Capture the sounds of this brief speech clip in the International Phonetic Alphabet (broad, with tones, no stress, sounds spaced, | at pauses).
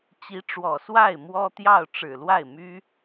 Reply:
t͡ɕ i˧˥ ʈ͡ʂ w ɔ˨˩ s w a˥˩ ɪ̯ m w ɔ˥ t̪ j ɑ˥˩ ʊ̯ ʈ͡ʂ ɻ̩˨˩ l w a˥˩ ɪ̯ m y˥